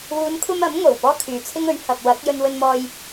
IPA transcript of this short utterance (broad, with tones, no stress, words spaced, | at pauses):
wuː˨˧nkʷʰɐ˧m ɐ˨˥mŋo˨˩w pɔː˥kʰyː˨˧t͡sʰɪ˥ŋɵ˨˥ɥ hɐ˨p̚ wɐ˨˥k̚ jɵ˧nwɵ˧nmɔː˧j